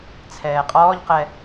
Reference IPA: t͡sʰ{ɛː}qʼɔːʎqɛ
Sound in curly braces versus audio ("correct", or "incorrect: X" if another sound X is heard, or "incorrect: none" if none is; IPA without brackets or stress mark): correct